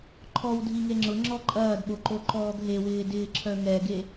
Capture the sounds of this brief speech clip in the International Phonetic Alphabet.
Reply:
ǃʰ ɔ w dʱ i ŋ e ŋ͡ǁ ʊ ŋ͡ǁ ɔ ǃʼ ɐː d ɓ o ǃ o ǃ ɔː ɡ ɦ e w ɪː d ɪː ǁʰ œ ŋ ɛ ɡ e

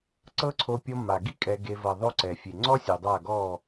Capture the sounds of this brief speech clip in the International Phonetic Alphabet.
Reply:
ǀ ɤ˦ ǀʰ o˧ pʲ ɔ˧ m a˨ ɡ i˦ kʼ ɛ˧ ɡ e˧ v ɤ˨ ðˤ o˦ ǀ ɛ˨ fʲ e˨ ŋ͡ǀ ɔ˦ sʲ u˨ dˤ a˦˨ ɡ ɔ˦˨

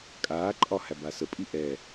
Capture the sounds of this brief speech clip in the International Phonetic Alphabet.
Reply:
kʼ aː ǃʼ ɒ h æ b a s ə pʼ i ʔ ɛ

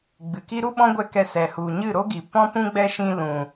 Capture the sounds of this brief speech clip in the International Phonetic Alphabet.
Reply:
ɡ͡b ɨ˨ k i˦ ɾ u˦ ɓ ɔ̃˦ ɡʷ ɛ˧ k ɛ˧ s ɛ˨ h u˨ ɲ ɨ˦˨ ɾ o˦ ɡ i˨ p ɔ̃˦ p ũ˦ ɡ͡b ɛ˦ ʃ ĩ˧ l ũ˨

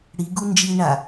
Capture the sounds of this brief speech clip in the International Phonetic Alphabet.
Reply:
ɽ i ɡ u n d͡ʒ i ɳ a

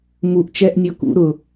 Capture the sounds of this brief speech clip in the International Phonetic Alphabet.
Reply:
m u ʔ t͡ʃ ɛ ʔ nʲ ɔ k ṵ ɾ ʊ

